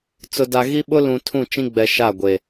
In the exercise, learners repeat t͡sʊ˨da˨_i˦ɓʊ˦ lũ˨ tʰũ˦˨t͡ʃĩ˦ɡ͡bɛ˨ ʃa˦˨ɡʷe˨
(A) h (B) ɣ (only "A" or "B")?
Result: B